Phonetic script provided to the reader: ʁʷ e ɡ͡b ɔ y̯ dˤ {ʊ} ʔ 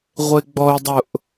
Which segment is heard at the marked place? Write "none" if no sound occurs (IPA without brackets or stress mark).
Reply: ʊ